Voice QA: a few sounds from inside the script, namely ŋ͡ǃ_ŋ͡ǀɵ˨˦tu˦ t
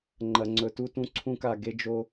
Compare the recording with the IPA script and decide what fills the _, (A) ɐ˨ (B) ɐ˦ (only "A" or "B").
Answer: A